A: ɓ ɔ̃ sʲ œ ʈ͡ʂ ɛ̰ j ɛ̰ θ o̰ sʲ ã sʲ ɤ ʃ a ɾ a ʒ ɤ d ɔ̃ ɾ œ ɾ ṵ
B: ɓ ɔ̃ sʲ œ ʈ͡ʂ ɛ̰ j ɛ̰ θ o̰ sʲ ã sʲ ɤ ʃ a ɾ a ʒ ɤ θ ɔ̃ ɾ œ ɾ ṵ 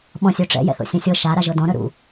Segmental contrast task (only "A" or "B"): A